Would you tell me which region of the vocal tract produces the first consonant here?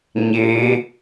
palate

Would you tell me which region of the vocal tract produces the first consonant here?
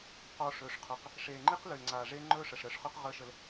uvula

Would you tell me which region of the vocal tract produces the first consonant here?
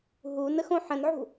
throat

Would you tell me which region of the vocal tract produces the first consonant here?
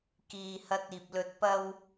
velum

